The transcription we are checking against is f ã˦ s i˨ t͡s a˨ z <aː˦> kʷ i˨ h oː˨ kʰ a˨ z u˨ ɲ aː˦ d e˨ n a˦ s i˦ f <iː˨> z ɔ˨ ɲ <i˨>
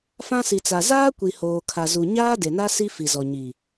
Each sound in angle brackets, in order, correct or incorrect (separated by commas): correct, incorrect, correct